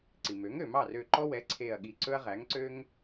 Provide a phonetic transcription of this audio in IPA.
ǀ i˩ m ø˩˥ ŋ ø˩ m ɑ˥˩ r ø˧˩ ǃ ɔ˦ w ɛ˩˥ ǀʰ e˧˩ ɐ̯ ɠ i˧˩ ǀ ɵ˦ ɐ̯ ʁ æ˩˥ ŋ ǀ ø˦ ŋ

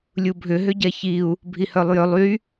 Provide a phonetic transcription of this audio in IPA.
lʲ u bʱ ʏ ɦ ʏ ɟ ɛ ç i u̯ | bʱ i h œ lˠ j ʏ lˠ y

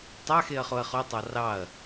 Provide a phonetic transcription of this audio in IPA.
tˤ a x e ɐ̯ χ o ɐ̯ χ o tˤ ɑ r ɑ ɐ̯

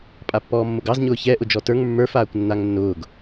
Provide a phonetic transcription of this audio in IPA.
pʼ a pː ɔː mː ʊ ɡ ɑ z ɲ ʊː ç ɛ ʔ ʊ d͡ʒ ɔ t ə˞ ŋ mː ə˞ f aː kʷ nː a ŋ nː ʊː ɡ

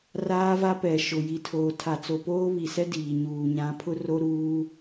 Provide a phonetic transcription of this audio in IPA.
r aː˦ v a˦ p ɛ˨ ʃ ʊ˨ j i˨ tʰ oː˨ tʰ a˨ t͡s o˨ p oː˦ β i˨ s ɛ˦ d iː˨ ɲ uː˨ ɲ ã˨˦ pʰ ʊ˦ r o˦ ɾ uː˦

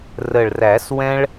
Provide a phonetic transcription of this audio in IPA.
r ə˨˩ ɭ r æ˨˩˦ s w ɛ̃˦ ɭ

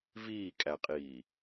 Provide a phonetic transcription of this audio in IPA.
v iː kʼ æ qʼ iː

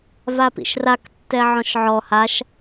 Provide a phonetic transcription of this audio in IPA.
v a p ḭ ʃ r a k tː ɛ ʕ ɔ̃ ʃ ʕ ɔ h a ʃ

